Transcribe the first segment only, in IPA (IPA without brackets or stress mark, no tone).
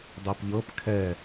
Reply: dˤ